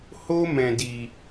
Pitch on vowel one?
high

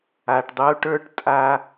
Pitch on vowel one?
low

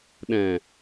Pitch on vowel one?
low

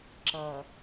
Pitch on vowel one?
low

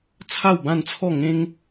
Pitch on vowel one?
falling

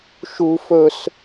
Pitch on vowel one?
high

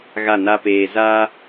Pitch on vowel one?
falling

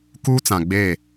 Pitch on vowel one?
high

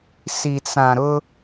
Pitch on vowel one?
low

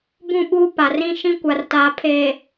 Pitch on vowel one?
falling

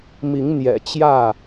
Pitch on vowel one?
rising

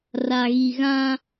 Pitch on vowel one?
low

